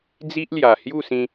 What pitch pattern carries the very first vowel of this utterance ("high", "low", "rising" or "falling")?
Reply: high